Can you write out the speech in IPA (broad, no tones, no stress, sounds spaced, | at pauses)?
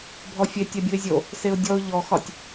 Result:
bʱ ɔ fʲ e tʲ ɛ bʲ u ɪ̯ zʲ o | s e ʊ̯ dʲ ɔ ʊ̯ ʎ ɔ x ɒ tʲ